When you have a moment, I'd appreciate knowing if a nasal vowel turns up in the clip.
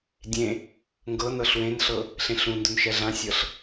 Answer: yes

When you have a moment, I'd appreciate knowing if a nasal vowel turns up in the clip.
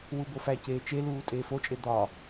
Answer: no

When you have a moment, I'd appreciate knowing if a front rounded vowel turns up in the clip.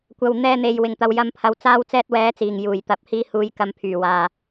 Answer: yes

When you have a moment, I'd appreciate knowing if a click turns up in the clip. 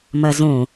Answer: no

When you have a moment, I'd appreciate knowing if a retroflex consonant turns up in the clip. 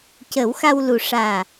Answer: yes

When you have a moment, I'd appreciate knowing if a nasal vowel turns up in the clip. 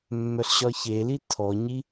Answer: no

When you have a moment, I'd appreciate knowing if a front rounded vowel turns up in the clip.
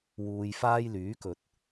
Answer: yes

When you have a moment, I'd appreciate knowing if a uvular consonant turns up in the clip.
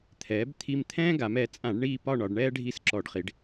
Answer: yes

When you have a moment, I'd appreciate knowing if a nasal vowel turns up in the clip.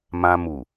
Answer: yes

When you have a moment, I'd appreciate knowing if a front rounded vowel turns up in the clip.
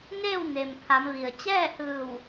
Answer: no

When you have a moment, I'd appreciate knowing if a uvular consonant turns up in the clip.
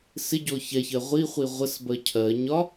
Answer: yes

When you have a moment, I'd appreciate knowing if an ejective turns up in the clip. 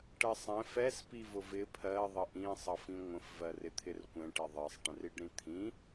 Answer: no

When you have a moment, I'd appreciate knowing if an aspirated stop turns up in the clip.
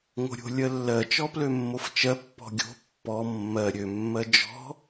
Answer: no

